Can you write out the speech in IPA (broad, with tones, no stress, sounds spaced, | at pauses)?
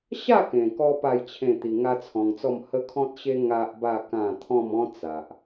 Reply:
ɕ a˥˧ k ẽ˨˩ k ɔ˧ p a˥˧ j t͡ɕʰ ẽ˥˧ t̪ i˧ ŋ a˦ t͡sʰ ɔ̃˧ ŋ t͡s ɔ˥˧ m h ə˦ kʰ ɔ̃˦ t̚ ɕ e˦ ŋ a˦ ʔ b a˥˧ k ã˥˧ t̪ʰ ɔ̃˥˧ m ɔ̃˦ t͡s a˨ ʔ